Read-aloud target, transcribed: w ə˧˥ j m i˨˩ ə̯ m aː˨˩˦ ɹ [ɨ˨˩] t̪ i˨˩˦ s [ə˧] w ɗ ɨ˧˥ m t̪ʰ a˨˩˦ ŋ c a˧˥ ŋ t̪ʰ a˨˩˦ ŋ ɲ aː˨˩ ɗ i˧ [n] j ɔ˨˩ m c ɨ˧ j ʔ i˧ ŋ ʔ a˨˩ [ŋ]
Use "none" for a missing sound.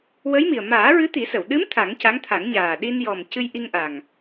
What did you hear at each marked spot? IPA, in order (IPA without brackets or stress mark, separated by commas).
ɨ˧˥, ə˨˩˨, n, ŋ